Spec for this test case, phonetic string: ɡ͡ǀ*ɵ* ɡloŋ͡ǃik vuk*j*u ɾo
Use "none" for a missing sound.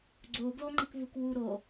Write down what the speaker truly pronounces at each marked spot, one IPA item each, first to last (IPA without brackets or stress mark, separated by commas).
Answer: o, w